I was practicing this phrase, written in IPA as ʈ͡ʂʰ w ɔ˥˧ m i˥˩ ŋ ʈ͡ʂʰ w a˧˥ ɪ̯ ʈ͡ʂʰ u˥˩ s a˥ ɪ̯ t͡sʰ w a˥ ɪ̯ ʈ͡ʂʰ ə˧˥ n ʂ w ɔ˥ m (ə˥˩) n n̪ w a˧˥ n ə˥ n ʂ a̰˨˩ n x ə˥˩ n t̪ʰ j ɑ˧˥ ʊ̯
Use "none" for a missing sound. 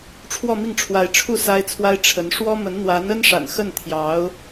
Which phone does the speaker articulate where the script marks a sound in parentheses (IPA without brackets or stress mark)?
ə˧˥